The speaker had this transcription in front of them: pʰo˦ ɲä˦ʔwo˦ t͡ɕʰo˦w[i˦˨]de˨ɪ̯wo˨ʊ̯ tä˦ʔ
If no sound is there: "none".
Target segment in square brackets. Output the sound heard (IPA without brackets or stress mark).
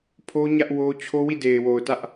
i˦˨